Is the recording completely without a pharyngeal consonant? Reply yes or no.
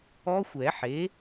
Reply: no